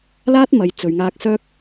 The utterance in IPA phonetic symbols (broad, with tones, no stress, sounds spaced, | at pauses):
l aː˥ t̚ m ɐ˨˧ j t͡s ɵ˨ ɥ ŋ aː˧ k̚ s œː˥ k̚